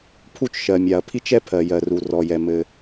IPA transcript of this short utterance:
pʰ u˥ t͡ʃ ʃ ɜ˩ mʲ a˩ ɐ̯ pʰ i˥ t͡ʃ ɛ˥ pʰ ɜ˩ j ɜ˩ r u˩ r ɔ˩ j ɛ˩ m ɘ˩

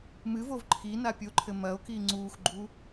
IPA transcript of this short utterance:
m ɨ v o v ǃʰ i n a pʲ o ǃʰ ɘ m ɐ o̯ k i ŋ͡ǀ uː x ɡ͡ǃ u

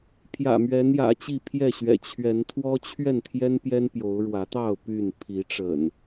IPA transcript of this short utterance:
pʰ j ä̰˨˩ m ɥ ɛ˨˦ n j ä̰˨˩ t͡ɕ i˥˨ pʰ j ɛ˥˨ ɕ ɥ ɛ̰˨˩ t͡ɕʰ ɥ ɛ˨˦ n t̪ʰ w ɔ˦ t͡ɕʰ ɥ ɛ˥˨ n t̪ʰ j ɛ˦ n p j ɛ˦ n p j o˨˦ ʊ̯ ɻ w ä˨˦ t̪ ɑ˥˨ ʊ̯ p y˥˨ n pʰ i˨˦ ʈ͡ʂ ə̰˨˩ n

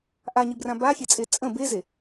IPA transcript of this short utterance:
ʔ a ɲ i b r ã b a xʲ e t͡sʼ e t͡sʼ ə̃ b e z e

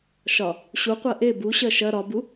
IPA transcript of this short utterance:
ʃ ɒ | ɕ u qʷ ɜ ʔ e b u ɕ ɜ ʃ ɐ ɾ ɒ b u

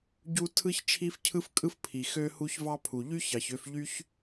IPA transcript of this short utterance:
ɟ u˥ tʰ ɯ˥ ç t͡ʃʰ i˥ f cʰ ɯ˥ f kʼ ɯ˥ f pʰ i˩ x ø˧ h u˥ ç v ɑ˥ pʰ u˩ ʎ y˥ ç ɑ˩ ç ø˧ f ʎ y˥ ç

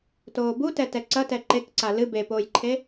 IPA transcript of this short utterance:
t oː b u t ɛ t ɛ ǀ ɐ t ɛ ǃ e k ǀ a l ɨ b e p oː j ǃʰ e

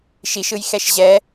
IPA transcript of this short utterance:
ʃ i ʃ ɯ j x ɛ ʃ ʑ ɛ

